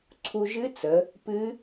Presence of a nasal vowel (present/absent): absent